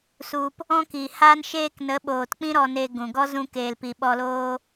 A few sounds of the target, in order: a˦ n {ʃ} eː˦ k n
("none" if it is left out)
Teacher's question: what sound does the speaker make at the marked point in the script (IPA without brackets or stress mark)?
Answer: ʃ